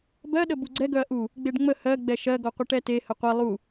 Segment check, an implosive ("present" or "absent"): present